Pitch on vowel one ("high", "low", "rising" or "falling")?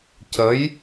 rising